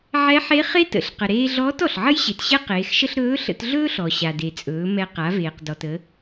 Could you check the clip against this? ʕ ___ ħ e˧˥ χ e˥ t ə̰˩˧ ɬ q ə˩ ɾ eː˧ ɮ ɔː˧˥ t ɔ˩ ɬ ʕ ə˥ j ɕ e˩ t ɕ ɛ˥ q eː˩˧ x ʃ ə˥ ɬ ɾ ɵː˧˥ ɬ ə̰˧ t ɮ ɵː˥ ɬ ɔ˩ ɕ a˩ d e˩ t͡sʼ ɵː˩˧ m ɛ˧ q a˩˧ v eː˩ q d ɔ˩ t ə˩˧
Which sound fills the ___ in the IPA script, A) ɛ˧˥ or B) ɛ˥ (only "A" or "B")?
A